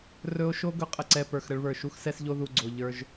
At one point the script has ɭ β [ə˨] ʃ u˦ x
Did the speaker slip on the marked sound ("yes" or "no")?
yes